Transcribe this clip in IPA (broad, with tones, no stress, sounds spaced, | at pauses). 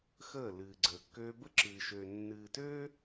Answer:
x əː˦˨ l ɨː˨ ɡ͡ǀ əː˨ kː øː˦ b ə˦ ǁ ɨː˨ ʃ øː˨ nː ɨː˨ t øː˦